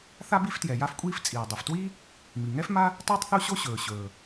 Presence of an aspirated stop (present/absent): absent